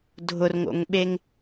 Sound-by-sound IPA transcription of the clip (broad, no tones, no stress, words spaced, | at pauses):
dʱʊrŋo̰ŋɓeŋ